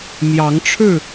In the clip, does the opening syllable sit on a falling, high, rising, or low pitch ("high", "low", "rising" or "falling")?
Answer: rising